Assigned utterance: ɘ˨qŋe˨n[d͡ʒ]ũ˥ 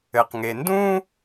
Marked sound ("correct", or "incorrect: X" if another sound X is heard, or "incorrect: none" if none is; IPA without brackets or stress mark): incorrect: d